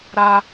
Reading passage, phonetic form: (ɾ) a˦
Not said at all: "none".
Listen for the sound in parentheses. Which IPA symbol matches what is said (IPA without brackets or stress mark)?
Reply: ɾ